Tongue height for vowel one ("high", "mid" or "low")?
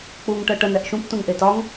high